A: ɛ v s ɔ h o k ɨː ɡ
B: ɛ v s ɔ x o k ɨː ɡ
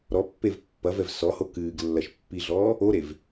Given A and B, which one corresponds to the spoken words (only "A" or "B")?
A